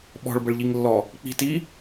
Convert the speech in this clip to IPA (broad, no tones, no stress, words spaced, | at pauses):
ɓɔ̤ɭbəɭʎiŋlːɔ | k͡pi̤ti